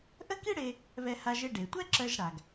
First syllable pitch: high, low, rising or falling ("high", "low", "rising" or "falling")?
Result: high